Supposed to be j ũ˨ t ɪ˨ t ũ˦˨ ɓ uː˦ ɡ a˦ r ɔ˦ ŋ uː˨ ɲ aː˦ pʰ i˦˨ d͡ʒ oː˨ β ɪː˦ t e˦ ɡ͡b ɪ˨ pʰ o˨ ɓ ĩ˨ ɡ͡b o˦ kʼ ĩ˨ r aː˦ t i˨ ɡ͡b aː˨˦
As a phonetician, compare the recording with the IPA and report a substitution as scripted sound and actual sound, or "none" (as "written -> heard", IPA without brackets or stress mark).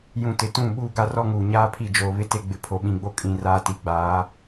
ɪː˦ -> ɪ˦